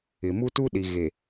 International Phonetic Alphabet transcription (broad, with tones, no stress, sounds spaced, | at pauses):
ɪ˨ m u˦ t u˦ ɗ i˨ ɣ e˨